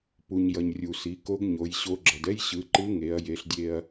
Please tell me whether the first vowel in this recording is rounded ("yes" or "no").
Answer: yes